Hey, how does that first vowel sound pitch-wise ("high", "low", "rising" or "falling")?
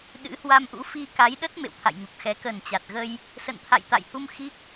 rising